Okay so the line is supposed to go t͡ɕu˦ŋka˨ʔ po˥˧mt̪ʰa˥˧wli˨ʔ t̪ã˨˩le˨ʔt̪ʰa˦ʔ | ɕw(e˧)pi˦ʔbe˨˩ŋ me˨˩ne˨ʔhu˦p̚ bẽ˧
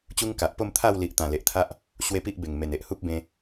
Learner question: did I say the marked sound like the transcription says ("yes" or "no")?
no